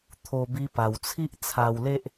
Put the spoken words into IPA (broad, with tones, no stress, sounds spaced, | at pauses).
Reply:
t̪ʰ o˧ b i˧ p a˨˩ w t͡sʰ i˦ ʔ t͡sʰ a˧ w l e˦ ʔ